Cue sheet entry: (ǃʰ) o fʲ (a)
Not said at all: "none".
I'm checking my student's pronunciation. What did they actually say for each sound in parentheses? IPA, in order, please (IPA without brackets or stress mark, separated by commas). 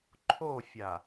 ǃʰ, a